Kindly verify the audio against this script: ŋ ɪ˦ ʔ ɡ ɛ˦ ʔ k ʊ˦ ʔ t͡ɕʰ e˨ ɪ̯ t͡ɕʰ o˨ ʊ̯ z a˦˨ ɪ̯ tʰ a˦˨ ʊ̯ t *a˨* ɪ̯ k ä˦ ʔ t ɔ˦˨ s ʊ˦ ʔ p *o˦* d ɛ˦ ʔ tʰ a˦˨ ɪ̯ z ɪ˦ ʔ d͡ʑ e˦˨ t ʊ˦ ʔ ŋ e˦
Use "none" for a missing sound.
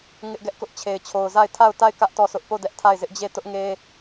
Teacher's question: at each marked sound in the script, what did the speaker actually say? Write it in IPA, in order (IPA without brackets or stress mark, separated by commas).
a˦˨, o˦˨